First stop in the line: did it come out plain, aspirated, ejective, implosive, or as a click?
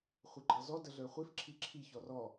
click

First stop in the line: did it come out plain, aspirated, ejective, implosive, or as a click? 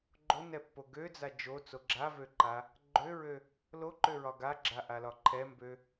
click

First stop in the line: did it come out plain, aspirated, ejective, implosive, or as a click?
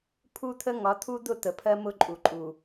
aspirated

